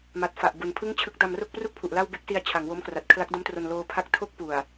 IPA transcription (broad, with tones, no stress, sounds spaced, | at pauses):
m a˨˩ t̚ f a˨˩ ʔ b u˨˩ n pʰ ɯ˥˩ ŋ t͡ɕʰ ɯ˦˥ k̚ d a˧ m r o˥˩ k̚ p r u˥˩ k̚ pʰ u˨˩ ʔ l a˥˩ w b e˥˩ k̚ s i˧ a̯ t͡ɕʰ a˩˦ ŋ w o˦˥ m k r a˨˩ t̚ kʰ l a˦˥ k̚ d o˦˥ m t r o˧ n l oː˧ pʰ a˦˥ k̚ tʰ o˥˩ k̚ p u˨˩ a̯